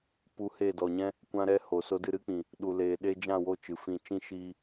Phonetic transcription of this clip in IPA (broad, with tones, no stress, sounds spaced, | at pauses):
p u˧ h e˦˨ d ɔ˨ ɲ ɛ̃˦ | kʷ ã˦ ɾ ɛ˦ h o˨ s o˧ d ɨ˧ ɾ ɨ˦ k͡p ĩ˨ | ɗ u˨ l eː˨ ɗ eː˧ d͡ʒ ã˦˨ w o˦˨ t͡ʃ ɨ˨ f ĩ˦˨ t͡ʃ ĩ˦ ʃ iː˧